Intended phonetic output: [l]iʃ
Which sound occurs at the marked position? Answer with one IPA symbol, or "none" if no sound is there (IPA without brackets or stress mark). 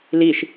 l